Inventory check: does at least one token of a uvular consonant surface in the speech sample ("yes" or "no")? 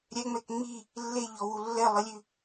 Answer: no